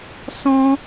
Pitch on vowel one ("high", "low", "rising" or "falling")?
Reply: high